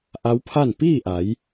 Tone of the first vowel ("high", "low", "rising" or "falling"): rising